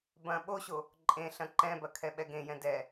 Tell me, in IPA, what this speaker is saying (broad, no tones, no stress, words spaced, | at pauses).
bɐ̃ ɓoɕo | ǃʼẽɬɐ̃ ǃɛ̃bɐ kʰɛɓɛɡẽjɛ̃ dɛ